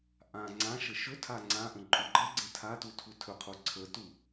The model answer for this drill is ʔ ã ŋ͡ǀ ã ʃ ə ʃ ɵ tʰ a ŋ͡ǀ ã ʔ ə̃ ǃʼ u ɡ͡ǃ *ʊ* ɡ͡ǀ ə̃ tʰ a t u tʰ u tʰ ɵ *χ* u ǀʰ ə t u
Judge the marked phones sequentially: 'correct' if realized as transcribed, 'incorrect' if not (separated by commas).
incorrect, incorrect